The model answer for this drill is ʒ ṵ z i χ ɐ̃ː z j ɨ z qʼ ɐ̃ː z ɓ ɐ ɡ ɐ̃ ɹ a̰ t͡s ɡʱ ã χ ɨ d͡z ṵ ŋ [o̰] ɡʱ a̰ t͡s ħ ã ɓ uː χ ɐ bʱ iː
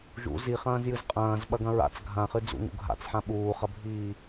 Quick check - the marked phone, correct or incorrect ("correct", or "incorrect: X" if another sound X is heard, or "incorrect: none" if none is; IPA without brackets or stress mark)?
incorrect: ṵ